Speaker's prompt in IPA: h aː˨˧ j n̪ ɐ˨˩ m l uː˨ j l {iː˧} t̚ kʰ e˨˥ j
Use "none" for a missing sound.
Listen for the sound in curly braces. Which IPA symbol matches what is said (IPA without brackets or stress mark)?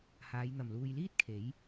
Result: iː˥